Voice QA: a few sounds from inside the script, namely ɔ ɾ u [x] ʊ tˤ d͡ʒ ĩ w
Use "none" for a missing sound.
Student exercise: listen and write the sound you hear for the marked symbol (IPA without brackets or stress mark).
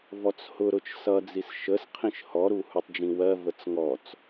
h